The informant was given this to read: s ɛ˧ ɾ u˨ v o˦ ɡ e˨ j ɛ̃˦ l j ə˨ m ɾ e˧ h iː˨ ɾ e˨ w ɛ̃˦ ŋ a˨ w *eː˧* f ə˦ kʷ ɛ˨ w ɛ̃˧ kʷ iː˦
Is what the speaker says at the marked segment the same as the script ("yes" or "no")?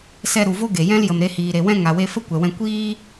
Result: no